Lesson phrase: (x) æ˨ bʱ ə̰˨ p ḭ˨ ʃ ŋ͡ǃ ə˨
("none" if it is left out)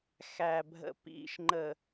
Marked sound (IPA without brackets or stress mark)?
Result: x